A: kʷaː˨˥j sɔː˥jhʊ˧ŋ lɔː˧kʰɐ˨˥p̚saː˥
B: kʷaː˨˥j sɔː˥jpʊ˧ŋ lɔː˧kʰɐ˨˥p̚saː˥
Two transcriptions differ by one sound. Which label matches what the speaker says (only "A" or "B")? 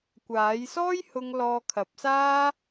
A